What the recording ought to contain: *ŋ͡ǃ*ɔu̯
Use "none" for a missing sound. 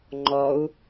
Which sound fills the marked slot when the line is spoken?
ŋ͡ǃ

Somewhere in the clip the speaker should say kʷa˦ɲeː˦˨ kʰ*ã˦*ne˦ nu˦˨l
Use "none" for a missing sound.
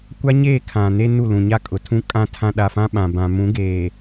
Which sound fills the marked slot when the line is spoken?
ã˨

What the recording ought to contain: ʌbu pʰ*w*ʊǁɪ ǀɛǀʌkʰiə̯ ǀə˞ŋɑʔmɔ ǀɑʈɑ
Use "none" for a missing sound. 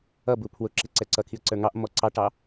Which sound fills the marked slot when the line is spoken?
w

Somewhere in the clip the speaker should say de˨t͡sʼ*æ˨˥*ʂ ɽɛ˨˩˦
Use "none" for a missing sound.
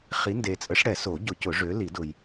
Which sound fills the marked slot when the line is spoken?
ə˨˥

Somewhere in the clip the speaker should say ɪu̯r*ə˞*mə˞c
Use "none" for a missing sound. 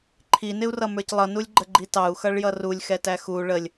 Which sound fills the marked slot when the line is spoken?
ʌ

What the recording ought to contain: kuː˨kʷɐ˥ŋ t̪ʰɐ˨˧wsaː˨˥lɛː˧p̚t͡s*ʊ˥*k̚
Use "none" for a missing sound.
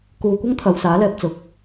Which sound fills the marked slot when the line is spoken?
ʊ˨˥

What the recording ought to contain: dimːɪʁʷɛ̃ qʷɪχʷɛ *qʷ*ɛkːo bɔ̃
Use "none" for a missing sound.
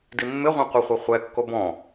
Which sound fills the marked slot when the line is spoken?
χʷ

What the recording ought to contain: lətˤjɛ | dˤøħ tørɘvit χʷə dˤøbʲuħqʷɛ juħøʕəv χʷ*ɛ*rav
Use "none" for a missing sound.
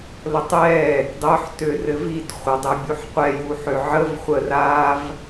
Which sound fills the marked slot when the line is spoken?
ə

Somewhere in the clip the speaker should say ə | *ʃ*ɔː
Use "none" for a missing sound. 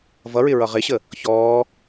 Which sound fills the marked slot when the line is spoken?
ç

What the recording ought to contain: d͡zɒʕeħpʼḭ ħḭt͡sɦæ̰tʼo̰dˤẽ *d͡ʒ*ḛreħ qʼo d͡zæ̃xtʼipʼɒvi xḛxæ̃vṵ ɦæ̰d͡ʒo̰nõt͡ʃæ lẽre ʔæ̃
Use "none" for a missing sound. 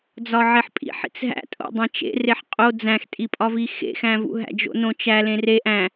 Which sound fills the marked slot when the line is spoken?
t͡ʃ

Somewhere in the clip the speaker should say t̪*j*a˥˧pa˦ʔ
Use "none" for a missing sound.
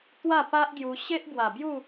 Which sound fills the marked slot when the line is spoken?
w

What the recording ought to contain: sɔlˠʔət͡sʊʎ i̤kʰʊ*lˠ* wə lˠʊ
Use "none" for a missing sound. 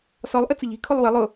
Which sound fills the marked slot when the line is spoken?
lˠ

